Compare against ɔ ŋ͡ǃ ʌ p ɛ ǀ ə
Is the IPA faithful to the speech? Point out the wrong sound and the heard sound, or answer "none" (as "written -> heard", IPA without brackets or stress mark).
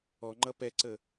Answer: none